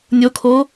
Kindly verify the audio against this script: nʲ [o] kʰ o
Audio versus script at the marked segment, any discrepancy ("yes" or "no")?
no